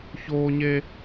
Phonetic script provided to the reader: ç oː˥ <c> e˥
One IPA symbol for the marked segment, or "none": ɲ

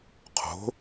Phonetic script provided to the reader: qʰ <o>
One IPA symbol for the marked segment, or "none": o̤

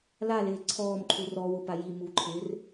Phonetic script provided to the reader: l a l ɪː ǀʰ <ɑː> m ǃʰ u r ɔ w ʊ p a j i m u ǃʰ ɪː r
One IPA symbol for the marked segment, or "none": ɔː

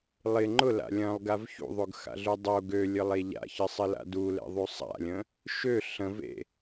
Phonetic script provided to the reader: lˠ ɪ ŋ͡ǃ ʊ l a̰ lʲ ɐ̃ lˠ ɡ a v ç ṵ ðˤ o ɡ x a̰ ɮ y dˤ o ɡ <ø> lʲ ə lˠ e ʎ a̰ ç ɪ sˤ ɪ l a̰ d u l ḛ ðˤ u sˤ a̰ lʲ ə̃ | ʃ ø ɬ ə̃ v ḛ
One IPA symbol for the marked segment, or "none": ø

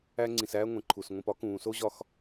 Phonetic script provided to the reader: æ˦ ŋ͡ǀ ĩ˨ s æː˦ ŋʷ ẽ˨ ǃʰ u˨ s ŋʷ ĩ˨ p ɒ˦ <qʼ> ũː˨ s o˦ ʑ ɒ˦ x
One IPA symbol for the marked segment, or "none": k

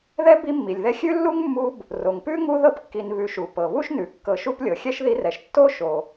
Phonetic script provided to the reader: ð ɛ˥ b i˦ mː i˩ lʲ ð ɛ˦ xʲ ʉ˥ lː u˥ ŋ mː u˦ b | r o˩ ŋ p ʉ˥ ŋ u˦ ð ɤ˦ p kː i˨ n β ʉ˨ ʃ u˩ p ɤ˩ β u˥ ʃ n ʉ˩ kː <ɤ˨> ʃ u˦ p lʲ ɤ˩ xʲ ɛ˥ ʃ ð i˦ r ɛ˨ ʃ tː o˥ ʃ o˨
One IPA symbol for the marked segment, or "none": ɤ˨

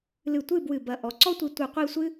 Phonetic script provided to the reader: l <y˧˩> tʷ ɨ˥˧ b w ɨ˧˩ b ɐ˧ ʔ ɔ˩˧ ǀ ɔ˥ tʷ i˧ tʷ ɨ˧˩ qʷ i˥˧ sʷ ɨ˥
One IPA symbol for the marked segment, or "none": ɨ˧˩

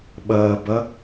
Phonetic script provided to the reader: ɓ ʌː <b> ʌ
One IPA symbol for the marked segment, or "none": b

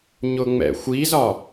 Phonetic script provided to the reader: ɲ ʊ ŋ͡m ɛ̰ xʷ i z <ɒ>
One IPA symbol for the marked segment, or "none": ɒ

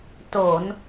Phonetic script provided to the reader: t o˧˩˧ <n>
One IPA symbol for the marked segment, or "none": n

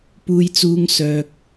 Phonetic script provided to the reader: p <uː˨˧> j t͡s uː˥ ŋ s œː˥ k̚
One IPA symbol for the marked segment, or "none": uː˥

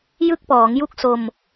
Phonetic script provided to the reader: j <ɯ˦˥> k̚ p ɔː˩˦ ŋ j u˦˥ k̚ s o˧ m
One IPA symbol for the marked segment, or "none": ɯ˦˥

